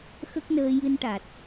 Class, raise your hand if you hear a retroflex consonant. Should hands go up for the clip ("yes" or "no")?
yes